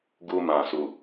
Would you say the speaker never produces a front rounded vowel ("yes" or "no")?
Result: yes